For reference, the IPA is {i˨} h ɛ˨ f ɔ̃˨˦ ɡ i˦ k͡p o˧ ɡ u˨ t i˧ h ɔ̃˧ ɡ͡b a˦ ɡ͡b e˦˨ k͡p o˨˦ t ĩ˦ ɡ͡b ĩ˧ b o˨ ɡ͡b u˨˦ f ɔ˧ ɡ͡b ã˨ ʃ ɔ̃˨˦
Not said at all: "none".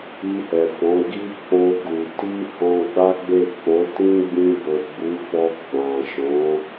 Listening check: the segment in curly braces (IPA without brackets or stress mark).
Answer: i˧